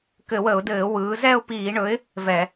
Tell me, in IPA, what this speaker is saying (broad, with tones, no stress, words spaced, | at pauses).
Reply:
kɘ˧˩˧wə˧˩˧ʊ̯dɘː˧˩˧ wɯː˩˧zɛ˥˧ʊ̯piː˧˩˧ɳɵ˨˥ɪ̯ | vɛ˧˩˧